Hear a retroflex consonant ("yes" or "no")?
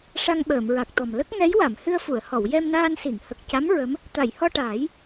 yes